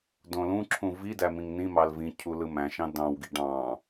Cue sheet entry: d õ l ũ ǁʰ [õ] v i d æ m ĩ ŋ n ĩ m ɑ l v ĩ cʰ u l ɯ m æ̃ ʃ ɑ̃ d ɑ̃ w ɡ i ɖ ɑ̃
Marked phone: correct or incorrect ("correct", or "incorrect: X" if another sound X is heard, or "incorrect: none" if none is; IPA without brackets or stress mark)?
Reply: incorrect: ũ